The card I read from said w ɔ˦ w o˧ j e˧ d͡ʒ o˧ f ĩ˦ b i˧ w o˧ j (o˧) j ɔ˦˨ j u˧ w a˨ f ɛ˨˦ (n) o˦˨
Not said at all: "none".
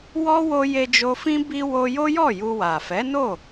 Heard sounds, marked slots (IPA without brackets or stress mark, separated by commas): o˦, n